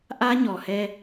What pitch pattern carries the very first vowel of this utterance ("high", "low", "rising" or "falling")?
high